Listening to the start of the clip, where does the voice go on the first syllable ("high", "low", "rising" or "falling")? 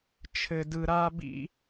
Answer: low